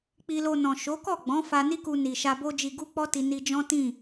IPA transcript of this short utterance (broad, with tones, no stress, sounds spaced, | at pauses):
k͡p i˧ l o˧ n ɔ̃˨ ʃ o˨˦ k ɔ˦˨ ɡ͡b ɔ̃˨˦ f a˧ n i˦ k u˧ n i˨ ʃ a˧ b o˦ d͡ʒ i˧ ɡ u˦ k͡p ɔ˦ t i˧ n i˧ d͡ʒ ɔ̃˦ t ĩ˦˨